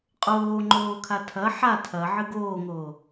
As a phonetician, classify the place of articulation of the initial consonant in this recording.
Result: uvular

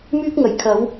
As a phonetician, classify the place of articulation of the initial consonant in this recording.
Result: labial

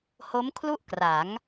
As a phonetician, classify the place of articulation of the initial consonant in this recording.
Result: glottal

